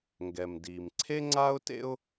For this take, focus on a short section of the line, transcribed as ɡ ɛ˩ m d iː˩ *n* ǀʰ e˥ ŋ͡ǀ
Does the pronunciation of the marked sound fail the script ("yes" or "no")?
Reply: yes